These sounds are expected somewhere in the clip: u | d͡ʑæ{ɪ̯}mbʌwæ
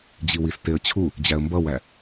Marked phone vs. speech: incorrect: ə̯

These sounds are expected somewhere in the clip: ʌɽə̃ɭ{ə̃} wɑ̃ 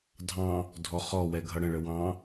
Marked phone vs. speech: incorrect: ə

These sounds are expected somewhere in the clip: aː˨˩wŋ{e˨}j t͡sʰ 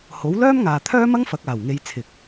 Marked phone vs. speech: incorrect: e˨˧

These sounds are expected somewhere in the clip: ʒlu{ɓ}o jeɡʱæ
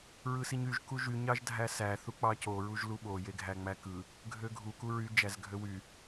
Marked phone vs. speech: correct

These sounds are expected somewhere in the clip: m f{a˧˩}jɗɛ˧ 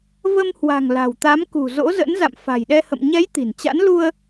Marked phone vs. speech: incorrect: a̤˨˩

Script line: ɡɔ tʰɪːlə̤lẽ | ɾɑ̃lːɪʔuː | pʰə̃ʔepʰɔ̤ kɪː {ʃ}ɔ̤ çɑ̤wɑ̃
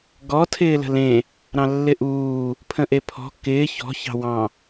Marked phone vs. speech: incorrect: ç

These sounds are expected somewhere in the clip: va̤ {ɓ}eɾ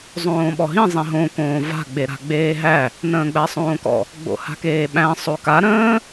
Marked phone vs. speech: incorrect: ɡ͡b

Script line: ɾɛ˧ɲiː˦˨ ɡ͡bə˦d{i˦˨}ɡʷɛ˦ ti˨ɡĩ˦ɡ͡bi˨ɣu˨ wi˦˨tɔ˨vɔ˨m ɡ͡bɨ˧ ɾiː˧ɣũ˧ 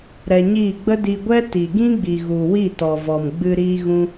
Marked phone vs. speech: incorrect: i˧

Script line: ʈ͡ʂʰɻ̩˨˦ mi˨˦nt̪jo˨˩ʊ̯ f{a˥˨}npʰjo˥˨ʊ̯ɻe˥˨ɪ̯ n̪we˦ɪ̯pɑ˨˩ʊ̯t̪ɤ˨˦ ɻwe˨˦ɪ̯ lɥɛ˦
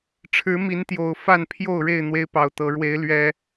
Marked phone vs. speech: correct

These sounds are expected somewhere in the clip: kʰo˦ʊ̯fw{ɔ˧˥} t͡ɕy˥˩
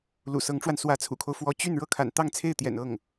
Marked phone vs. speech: correct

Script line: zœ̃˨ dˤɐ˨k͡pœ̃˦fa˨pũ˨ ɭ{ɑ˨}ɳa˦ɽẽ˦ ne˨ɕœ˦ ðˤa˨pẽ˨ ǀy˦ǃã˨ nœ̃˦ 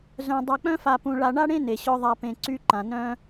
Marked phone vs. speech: incorrect: a˨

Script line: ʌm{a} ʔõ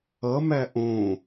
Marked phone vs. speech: incorrect: æ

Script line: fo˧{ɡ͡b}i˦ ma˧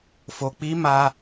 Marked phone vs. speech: incorrect: k͡p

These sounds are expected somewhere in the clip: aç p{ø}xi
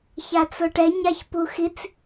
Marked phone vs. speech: incorrect: u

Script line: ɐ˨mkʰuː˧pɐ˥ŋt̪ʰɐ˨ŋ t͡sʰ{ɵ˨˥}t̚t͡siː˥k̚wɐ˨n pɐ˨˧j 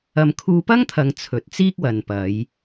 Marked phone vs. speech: correct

